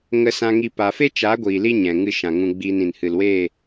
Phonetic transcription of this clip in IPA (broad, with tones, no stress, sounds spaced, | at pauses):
ŋ ə˧ s ã˦ ŋ i˦ p a˧ f e˦ t͡ʃ a˨˦ ɡʷ iː˨ l i˧ ɲ ɛ̃˨ ŋ ɨ˧ ʃ ã˨ ŋ ũ˧ ɡ͡b iː˧ n ĩ˨ n h ɨ˨ l w eː˦˨